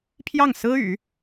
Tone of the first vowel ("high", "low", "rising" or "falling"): falling